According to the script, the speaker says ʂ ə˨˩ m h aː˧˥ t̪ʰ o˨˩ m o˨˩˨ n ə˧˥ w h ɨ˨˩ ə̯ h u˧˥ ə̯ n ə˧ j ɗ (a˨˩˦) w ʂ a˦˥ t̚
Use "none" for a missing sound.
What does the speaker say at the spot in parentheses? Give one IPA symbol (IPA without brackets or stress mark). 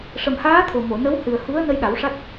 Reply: a˨˩˦